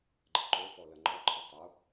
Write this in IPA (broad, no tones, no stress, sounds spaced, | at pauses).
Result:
ɡ͡ǃ ə ǃ o f ɔ l ɐ ŋ͡ǃ ɔ ǃʰ ə tˤ o